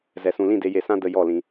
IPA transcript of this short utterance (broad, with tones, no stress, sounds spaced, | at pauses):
z ɛ˨ s ũ˨ l ĩ˦˨ d e˧ j e˧ s ã˦ d ə˧ j ɔ˦˨ l ĩ˧